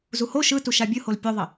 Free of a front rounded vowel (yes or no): yes